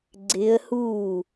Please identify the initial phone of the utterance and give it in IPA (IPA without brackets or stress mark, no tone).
ɡ͡ǀ